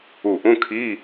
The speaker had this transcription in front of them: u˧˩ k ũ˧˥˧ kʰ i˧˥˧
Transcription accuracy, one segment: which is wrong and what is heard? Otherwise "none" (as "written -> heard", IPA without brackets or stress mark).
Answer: k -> ʔ